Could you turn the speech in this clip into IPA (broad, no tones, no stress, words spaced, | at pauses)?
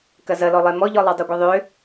kɐzɐlɔlˠe mɔʎɔlˠa dˤøɡʷeðˤø